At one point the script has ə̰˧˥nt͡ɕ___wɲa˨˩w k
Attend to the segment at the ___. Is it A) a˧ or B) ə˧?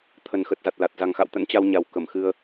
A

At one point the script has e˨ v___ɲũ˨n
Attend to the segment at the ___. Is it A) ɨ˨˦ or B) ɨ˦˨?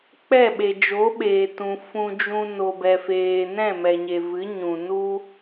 A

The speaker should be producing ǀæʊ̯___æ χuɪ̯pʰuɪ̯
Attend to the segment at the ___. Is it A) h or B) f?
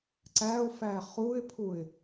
B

